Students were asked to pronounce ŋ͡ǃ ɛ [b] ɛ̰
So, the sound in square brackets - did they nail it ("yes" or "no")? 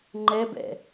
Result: yes